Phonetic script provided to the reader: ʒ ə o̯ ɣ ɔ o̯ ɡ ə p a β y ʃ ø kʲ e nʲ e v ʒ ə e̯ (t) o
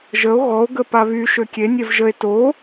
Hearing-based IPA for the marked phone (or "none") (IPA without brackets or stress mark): t